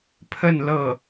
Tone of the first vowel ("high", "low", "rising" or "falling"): falling